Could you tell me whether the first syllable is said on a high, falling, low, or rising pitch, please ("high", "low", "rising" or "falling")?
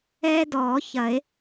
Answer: high